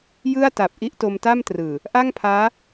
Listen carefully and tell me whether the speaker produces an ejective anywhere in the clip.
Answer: no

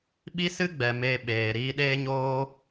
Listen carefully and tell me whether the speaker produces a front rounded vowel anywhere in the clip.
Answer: no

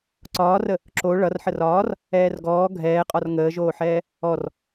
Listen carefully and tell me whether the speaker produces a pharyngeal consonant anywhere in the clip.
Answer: yes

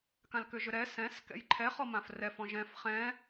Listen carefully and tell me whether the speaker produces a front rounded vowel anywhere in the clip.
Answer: yes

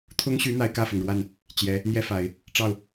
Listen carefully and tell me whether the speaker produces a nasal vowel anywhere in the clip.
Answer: no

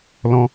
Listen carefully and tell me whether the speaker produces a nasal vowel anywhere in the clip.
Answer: yes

